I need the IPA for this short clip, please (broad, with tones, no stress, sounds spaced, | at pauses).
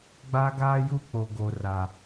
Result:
ɡ͡b a˦ ɡ aː˦ j u˦ k͡p o˦ ɡ o˦ r a˦